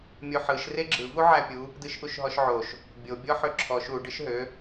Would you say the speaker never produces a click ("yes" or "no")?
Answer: no